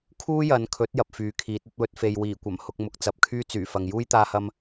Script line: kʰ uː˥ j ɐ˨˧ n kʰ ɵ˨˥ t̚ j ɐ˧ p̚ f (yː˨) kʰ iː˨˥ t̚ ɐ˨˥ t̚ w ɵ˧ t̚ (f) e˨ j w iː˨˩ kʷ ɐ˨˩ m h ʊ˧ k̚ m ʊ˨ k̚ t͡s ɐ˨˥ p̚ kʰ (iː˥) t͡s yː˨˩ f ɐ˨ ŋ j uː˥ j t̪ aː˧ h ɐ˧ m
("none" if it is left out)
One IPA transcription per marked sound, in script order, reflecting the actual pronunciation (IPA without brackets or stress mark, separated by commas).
yː˨˥, f, yː˥